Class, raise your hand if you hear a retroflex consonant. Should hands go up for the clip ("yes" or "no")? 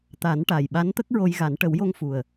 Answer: yes